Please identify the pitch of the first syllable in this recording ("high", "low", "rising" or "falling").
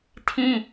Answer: high